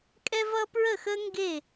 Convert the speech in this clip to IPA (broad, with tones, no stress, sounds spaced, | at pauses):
kʼ ɛ˥ v ʌ˥ p ɹ ə˥˨ x ə˥ ŋ ɡ e˥˨